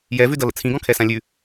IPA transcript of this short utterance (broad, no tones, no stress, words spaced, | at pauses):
jɛvʉdʌlə̰ t͡sʰĩɡɔ̃kʰɛsã lʲʉ